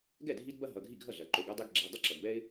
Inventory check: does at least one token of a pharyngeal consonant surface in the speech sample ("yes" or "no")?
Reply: no